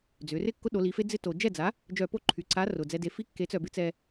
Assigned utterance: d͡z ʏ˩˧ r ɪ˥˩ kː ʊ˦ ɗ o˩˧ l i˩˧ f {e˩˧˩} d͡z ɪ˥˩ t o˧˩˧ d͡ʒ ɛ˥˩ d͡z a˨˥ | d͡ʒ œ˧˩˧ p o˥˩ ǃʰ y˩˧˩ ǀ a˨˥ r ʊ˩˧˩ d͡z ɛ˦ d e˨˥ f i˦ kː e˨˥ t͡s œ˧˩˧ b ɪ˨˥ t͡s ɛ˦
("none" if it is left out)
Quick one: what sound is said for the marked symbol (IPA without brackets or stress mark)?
e˦